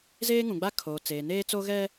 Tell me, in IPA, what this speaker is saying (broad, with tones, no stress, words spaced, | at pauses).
zeː˦ŋũ˨ɡ͡ba˦kʰoː˨ t͡seː˨neː˦t͡so˦ ɣɛ˦